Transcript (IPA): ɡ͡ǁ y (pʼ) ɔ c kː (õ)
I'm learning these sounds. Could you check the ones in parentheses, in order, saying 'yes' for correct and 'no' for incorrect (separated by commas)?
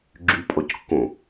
yes, yes